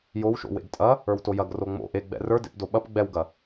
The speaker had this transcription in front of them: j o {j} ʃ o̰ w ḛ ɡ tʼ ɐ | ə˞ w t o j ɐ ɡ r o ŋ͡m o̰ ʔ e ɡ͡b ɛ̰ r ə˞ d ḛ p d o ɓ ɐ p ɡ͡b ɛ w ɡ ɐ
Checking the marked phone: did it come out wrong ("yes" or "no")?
yes